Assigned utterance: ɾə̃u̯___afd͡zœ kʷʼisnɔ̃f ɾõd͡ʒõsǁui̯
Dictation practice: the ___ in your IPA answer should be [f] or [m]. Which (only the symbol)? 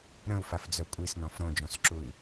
f